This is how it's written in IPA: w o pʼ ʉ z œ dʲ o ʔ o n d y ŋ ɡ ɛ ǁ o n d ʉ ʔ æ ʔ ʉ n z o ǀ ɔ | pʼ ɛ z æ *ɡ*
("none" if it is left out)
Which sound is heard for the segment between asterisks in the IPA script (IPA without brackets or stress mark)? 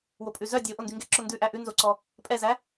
none